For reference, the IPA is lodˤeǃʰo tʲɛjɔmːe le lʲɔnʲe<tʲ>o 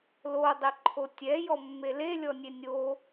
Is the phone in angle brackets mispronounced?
yes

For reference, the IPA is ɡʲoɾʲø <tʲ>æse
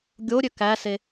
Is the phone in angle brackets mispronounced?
yes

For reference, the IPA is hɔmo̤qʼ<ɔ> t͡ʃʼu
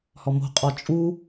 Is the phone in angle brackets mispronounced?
no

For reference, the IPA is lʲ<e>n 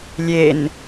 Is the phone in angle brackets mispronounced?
no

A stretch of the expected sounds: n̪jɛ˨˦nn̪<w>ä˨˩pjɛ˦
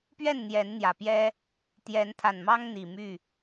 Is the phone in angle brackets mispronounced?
yes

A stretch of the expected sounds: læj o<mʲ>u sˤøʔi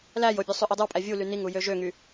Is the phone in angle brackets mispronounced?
yes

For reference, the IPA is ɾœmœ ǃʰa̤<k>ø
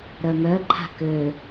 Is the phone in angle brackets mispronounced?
no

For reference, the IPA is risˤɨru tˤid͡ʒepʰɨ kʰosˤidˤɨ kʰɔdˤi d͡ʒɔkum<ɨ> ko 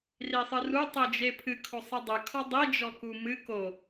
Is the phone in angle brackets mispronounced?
no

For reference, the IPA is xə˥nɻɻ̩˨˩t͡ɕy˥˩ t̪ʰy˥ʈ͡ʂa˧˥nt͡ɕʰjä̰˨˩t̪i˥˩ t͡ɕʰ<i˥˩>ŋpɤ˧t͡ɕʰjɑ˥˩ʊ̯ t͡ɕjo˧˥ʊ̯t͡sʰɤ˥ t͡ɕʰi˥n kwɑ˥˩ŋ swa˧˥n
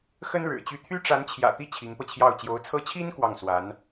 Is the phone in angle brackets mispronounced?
yes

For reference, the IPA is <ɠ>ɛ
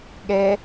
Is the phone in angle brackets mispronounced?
no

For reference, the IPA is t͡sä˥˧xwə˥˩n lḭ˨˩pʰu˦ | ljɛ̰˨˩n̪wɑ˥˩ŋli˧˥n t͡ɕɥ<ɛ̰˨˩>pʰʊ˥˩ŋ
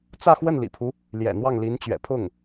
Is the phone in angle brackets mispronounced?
no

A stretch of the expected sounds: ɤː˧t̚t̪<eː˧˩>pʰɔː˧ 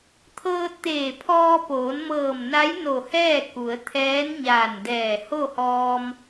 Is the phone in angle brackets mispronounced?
no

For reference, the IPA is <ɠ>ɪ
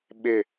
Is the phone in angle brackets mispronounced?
yes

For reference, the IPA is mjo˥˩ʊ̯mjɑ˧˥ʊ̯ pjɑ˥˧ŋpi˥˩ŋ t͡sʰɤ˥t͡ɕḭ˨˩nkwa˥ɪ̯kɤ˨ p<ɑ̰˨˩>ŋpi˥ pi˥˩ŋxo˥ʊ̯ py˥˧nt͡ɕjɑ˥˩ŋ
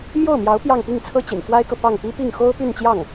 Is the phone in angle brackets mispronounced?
yes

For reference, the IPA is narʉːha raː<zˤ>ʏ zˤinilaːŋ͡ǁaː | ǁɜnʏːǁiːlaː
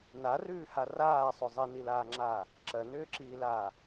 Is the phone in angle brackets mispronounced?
yes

